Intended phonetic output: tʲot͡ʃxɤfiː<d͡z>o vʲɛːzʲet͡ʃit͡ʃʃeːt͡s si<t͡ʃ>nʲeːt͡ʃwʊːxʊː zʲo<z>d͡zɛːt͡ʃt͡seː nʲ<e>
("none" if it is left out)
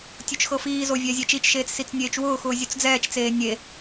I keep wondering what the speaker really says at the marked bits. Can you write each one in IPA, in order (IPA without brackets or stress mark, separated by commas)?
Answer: z, t͡s, t͡s, e